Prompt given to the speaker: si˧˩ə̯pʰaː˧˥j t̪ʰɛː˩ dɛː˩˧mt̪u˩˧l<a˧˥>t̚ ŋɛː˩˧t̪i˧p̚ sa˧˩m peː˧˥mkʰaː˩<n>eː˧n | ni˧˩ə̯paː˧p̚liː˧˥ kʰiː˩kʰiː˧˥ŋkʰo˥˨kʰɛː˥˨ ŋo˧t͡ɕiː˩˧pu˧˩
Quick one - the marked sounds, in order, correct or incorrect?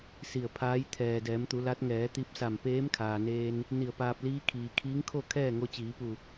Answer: correct, correct

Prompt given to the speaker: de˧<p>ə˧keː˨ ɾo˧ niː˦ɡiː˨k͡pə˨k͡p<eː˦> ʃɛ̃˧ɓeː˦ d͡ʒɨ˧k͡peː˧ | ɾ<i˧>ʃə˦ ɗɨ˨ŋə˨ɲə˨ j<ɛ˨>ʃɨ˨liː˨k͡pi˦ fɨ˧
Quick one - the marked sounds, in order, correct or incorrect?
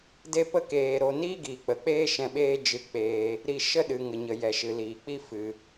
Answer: correct, correct, correct, correct

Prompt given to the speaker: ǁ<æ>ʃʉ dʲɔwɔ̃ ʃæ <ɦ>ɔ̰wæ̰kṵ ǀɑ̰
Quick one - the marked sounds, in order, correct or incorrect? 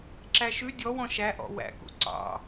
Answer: correct, incorrect: ʔ

